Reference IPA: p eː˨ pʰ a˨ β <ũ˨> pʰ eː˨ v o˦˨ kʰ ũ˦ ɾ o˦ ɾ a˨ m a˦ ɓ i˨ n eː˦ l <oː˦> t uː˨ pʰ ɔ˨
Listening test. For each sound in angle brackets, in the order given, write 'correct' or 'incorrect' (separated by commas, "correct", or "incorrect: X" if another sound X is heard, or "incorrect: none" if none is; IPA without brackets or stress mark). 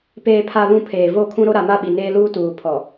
correct, incorrect: uː˦